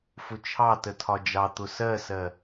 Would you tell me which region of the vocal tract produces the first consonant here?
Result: lips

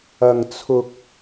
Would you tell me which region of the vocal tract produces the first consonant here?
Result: velum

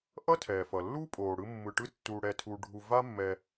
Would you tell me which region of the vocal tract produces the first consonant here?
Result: throat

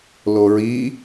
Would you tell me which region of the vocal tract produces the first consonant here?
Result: tongue tip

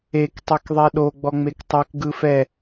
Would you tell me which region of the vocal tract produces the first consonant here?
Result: velum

